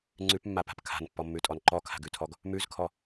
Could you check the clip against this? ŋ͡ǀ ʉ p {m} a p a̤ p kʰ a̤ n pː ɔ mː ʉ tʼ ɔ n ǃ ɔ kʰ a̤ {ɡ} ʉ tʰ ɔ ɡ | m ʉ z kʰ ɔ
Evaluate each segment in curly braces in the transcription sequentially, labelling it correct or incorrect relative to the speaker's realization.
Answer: incorrect: mː, correct

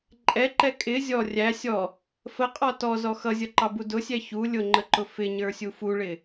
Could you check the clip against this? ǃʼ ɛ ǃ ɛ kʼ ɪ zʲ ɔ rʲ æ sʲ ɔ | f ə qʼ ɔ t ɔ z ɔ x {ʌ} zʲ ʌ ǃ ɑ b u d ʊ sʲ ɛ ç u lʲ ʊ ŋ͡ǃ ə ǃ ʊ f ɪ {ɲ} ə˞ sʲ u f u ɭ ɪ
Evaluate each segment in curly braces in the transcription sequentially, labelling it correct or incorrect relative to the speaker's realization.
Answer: correct, correct

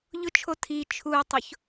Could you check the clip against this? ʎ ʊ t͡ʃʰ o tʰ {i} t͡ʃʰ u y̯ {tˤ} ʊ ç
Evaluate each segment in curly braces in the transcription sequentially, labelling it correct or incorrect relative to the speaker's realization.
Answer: correct, correct

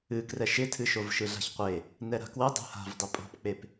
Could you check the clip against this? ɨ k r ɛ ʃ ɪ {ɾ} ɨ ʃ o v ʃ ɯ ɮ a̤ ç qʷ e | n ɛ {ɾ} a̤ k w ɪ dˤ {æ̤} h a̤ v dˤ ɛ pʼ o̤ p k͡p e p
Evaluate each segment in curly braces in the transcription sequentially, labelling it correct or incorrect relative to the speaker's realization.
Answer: incorrect: tʰ, correct, incorrect: ɛ̤

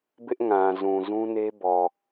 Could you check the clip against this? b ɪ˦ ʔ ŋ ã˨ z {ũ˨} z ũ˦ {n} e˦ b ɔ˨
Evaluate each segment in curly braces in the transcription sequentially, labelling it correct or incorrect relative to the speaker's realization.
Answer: correct, correct

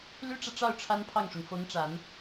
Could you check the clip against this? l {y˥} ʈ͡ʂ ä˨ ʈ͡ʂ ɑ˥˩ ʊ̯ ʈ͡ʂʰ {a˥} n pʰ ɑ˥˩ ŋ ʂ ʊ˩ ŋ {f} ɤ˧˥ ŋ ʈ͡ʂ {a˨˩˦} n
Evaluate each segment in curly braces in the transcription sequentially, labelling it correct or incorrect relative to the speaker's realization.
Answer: correct, correct, correct, correct

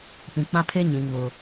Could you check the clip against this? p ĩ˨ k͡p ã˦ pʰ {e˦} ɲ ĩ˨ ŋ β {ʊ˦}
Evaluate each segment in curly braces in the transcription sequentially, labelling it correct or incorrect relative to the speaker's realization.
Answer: correct, correct

